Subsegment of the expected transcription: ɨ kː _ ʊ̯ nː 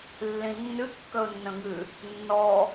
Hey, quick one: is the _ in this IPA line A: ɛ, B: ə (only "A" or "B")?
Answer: B